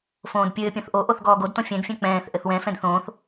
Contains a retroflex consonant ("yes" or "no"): no